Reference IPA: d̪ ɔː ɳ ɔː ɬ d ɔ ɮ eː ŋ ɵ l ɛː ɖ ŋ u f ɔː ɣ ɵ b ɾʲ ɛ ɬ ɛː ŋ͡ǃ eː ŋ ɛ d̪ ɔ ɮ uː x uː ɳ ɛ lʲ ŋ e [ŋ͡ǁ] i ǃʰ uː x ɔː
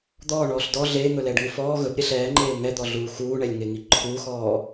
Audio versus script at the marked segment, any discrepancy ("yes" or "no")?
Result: yes